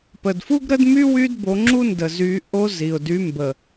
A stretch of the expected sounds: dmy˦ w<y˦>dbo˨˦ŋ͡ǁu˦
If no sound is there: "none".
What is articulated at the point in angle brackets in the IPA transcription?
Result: y˦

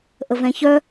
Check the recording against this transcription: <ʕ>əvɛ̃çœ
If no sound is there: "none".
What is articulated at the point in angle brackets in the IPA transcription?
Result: ʔ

